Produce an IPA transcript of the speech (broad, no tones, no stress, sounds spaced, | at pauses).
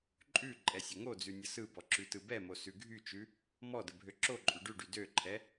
ǃʼ ʉ ǃʼ ɛ sʲ ə ŋ o d͡z ʉ nʲ ə s ɯ b ɔ ǁ ʉ t ɯ b ɛ m o s ʉ ɡʱ y t͡ʃ ʉ | m ɔ d ə bʱ ø ǁ o ǃʼ ʉ ɖ ʉ ɖ y d ø ǃʰ ɛ